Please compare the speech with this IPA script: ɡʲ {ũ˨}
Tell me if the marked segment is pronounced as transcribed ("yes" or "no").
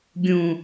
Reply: yes